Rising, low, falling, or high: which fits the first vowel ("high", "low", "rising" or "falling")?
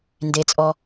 low